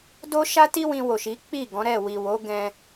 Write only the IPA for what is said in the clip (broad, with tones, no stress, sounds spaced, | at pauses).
d o˦ ʃ a˦ t i˦ w ĩ˧ w o˨ ʃ i˨˦ k͡p i˦˨ ɡ ɔ̃˨˦ ɾ ɛ˦˨ w i˨ w o˨˦ ɡ ɛ̃˦